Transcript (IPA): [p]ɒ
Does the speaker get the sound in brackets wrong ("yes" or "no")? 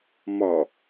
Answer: yes